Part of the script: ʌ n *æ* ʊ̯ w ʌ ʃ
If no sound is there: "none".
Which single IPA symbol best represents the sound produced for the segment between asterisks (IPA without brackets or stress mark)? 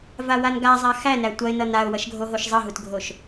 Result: a